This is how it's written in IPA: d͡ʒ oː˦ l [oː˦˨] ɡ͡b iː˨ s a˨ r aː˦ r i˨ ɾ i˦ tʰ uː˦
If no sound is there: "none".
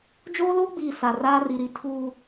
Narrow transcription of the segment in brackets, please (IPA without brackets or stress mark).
oː˦